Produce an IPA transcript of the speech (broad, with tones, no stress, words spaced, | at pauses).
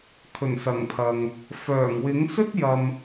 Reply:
kʰɵ˨˩nsɐ˨˩ŋpʰɐ˨ŋ | fœː˨˩ŋwɪ˨˥ŋsɵ˥t̚ jɐ˨m